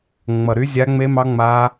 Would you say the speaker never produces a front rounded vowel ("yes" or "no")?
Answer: no